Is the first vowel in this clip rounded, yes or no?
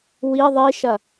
no